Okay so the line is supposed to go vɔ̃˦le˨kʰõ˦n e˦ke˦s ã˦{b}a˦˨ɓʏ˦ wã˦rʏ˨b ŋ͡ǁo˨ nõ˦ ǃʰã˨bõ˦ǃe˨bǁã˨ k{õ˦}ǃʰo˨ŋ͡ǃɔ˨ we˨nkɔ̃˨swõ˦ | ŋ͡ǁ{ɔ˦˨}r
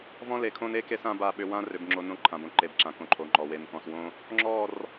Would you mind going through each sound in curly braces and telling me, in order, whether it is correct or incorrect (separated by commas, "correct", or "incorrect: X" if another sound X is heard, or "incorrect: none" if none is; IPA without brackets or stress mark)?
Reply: correct, incorrect: õ˨, correct